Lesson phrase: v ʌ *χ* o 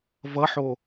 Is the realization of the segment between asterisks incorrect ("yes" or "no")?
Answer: yes